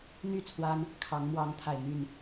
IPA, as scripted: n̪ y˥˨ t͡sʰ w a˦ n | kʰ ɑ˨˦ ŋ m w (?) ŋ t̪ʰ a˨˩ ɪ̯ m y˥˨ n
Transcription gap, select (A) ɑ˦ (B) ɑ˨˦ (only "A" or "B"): B